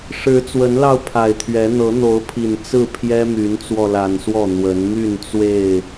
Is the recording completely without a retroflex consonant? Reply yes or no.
no